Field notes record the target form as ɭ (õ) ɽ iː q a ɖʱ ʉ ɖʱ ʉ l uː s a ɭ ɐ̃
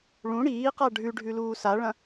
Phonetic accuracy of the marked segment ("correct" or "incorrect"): incorrect